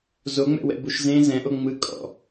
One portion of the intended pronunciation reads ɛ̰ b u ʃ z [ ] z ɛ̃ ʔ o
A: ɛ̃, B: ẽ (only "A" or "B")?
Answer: B